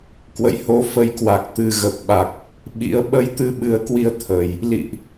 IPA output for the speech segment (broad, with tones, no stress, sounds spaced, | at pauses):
k w ə̰˧˨ j h o˨˦ f ə˨˦ j k w a˨˩ k̚ t̪ ɨ˨˩ ɣ ə˨˩ p̚ ɓ a˨˩ k̚ | ɓ ḭ˧˥ ə̯ ɓ ə˧ j t̪ ɨ˧ ɓ ɨ˨˩ ə̯ k w i˧ ə̯ t̪ʰ ə˨˩ j | l ḭ˧˨ ʔ